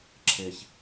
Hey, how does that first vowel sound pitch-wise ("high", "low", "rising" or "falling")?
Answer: low